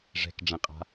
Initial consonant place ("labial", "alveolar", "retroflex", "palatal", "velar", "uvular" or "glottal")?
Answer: retroflex